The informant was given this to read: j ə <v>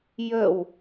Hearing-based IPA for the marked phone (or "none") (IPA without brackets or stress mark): w